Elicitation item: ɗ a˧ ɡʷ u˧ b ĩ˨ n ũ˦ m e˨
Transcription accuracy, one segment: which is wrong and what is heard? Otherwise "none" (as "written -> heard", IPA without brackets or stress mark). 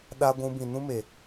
u˧ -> ũ˧